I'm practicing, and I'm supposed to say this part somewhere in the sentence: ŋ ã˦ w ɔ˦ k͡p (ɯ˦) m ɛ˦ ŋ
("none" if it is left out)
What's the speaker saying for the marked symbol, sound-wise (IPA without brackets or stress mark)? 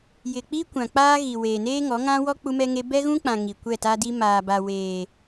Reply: u˦